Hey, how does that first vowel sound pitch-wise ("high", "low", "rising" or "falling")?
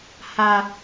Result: high